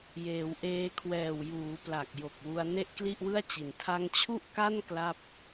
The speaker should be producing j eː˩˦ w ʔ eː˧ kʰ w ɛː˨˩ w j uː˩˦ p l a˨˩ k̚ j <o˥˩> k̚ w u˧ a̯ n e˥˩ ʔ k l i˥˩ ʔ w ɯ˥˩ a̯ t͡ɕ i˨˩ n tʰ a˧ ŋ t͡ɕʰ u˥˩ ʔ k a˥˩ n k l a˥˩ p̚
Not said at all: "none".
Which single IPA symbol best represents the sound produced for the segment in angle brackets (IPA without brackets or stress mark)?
o˨˩